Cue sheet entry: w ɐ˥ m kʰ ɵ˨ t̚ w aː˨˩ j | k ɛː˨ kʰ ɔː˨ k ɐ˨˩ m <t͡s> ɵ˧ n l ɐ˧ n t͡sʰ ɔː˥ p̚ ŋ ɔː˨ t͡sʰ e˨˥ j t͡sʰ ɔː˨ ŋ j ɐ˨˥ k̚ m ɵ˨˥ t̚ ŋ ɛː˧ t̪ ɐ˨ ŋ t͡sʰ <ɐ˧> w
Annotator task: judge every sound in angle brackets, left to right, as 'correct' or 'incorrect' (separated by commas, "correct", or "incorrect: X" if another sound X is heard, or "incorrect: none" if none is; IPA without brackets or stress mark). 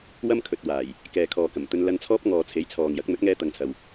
incorrect: t̪, incorrect: ɐ˨